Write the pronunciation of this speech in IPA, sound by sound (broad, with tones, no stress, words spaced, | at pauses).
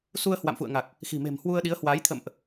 su˧ə̯hwa̰˧˨mfṵ˧˨ə̯ŋa˨˩k̚ | xi̤˨˩me̤˨˩mhwu˧ə̯ɗi˨˦ə̯ hwaː˨˦j t̪ʰə̰˧˨mʔ